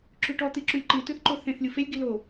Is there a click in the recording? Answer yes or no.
yes